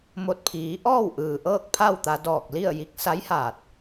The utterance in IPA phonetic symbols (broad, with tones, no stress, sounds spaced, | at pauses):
m o˧˩ t̚ pʰ iː˩˧ ʔ ɔː˥˨ w ʔ ɯː˩ ʔ ɤː˥˨ k̚ pʰ a˥˨ w t̪ a˧ d ɔː˧˩ k̚ l i˥˨ ə̯ j i˧˥ k̚ s a˧˥ j h aː˧˩ t̚